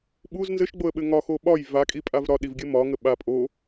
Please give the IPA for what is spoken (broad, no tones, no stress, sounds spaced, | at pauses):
ɓ u z n z ɘ ʃ ɡ͡b o ə̯ ɓ ɘ ŋ ɒ x o ɓ ɒ j v a kʼ i pʼ a v ɾ ɒ ɗ i v ɡʲ ɘ m ɒ ŋ ə ɓ a pʼ o